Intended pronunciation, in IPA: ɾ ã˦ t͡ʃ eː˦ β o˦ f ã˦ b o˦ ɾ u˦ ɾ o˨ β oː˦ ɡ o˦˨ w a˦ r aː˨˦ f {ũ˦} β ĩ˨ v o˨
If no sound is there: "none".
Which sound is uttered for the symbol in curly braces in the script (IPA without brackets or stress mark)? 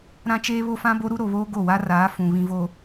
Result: ũ˨